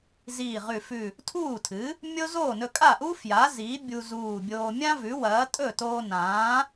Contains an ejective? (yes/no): yes